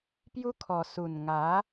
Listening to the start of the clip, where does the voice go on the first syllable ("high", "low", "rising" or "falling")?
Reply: high